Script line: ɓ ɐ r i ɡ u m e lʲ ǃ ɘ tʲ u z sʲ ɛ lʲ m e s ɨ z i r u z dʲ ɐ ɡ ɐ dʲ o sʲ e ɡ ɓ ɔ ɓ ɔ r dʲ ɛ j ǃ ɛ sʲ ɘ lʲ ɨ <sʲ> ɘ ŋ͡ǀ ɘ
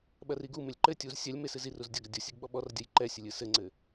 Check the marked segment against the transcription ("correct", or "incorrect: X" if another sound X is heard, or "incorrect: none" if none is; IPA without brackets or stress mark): incorrect: s